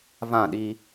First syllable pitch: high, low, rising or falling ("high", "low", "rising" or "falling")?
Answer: falling